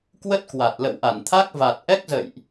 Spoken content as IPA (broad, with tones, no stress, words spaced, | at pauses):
kwə˦˥t̚kwa˨˩t̚ lə̰˧˨wʔa˧˩nt̪ʰa˦˥k̚ va˨˩t̚ ʔɛ˦˥k̚zə̰˧˨jʔ